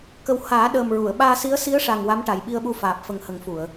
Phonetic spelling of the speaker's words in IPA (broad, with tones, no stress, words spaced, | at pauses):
kə˨˩w haː˨˩˦ɗəː˨˩mɹu˨˩˨ə̯ ɓaː˧si˧˥ə̯ si˧˥ə̯ʂa˨˩ŋ wa˧˥mʈa˨˩jɓi˧ə̯ɓu˧ faː˨˩p̚fə˨˩ŋ hə˨˩˦ŋfu˨˩˨ə̯